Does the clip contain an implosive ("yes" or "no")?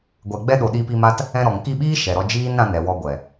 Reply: yes